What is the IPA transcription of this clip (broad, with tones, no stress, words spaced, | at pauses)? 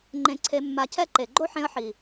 ŋ͡ǃẽ˧ǀʰe˧mːa˧cʰɛ˦ ǃe˨ɡ͡ǃo˦ħẽ˧ə̯ ħi˨